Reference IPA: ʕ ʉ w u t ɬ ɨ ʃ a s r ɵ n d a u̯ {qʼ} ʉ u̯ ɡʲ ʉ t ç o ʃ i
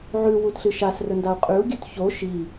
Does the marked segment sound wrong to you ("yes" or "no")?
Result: no